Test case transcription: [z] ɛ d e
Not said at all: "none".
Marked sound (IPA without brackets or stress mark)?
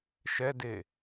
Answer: ʃ